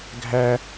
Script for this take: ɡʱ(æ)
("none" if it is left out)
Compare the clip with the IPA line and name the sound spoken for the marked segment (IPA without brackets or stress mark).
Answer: æ